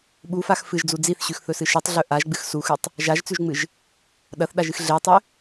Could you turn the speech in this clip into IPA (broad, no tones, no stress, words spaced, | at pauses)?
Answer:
ɓufax fɨʒd͡zu d͡ziθɕʉxθɵsɨ ʃɨtˤɮɵ ʔaʒɡ͡bɨx suxʉtˤ | ʒaʒt͡sʉʒŋ͡mɨʒ | ɗɐθɗaʒɨx ɮetˤɵ